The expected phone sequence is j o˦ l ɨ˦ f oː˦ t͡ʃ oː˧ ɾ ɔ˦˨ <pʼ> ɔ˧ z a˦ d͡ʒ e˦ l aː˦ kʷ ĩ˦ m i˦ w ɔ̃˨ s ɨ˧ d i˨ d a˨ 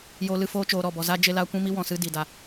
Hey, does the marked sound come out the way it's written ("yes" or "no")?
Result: no